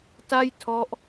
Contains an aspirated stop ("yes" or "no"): yes